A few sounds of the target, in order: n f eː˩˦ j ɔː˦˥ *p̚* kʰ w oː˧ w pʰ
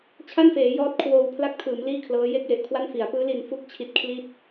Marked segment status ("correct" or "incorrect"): incorrect